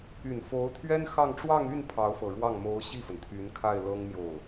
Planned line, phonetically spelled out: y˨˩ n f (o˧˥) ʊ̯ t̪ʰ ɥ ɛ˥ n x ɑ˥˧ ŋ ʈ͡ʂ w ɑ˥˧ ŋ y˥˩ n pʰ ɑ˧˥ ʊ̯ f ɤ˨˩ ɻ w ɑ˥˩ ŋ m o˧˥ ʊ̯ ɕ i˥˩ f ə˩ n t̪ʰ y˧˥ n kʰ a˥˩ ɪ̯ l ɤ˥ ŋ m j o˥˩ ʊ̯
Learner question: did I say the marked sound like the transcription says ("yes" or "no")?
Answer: yes